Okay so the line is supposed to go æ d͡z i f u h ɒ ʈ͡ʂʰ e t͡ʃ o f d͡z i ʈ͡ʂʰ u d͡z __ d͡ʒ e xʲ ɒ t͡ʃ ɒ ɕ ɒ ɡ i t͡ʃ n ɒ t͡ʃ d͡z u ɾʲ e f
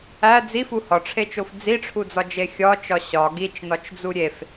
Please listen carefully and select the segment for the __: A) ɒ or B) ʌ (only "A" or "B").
A